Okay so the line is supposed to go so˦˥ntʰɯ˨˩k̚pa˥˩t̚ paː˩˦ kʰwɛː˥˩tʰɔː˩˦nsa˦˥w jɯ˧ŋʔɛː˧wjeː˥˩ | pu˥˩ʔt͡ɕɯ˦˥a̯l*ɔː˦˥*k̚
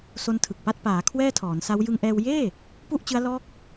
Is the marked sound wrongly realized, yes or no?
no